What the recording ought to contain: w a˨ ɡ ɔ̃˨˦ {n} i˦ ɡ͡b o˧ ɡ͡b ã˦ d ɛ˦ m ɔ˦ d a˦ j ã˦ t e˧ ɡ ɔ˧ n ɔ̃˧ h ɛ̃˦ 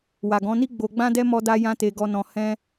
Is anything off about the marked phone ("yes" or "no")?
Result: no